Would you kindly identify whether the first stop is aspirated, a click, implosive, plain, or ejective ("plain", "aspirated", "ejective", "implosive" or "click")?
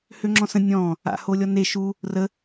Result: click